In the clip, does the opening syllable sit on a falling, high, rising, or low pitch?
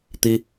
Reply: high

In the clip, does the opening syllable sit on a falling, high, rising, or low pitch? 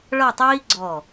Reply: falling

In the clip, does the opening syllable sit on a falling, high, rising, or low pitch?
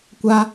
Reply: high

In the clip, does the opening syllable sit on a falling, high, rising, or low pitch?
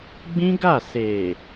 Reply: high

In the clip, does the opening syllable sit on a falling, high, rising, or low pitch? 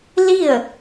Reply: falling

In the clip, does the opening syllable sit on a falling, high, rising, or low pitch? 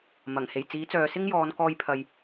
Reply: low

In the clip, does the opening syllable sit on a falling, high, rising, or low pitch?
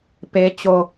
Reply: high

